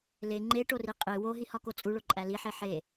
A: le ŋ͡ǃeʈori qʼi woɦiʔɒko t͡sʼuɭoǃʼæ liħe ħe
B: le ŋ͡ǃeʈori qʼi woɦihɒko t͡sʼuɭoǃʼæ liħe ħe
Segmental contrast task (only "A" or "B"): B